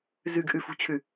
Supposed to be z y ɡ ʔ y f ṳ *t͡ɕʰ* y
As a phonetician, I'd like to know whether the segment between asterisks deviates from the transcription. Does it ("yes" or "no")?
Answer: no